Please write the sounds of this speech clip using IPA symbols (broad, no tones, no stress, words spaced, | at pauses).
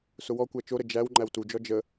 sʊwɔkʷæ t͡ʃoɾə d͡ʒæw ŋ͡ǃæwtud͡ʒɔ d͡ʒə